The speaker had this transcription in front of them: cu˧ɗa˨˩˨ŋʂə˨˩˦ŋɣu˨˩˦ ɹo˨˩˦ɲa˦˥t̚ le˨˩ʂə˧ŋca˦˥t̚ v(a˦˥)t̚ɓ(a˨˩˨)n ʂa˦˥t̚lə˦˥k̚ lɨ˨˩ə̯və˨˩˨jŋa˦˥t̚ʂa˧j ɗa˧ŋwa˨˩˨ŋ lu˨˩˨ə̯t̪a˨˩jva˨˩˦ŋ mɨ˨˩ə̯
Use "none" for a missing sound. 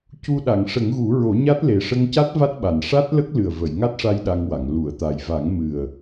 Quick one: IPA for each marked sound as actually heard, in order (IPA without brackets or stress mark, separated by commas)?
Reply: a˦˥, a˨˩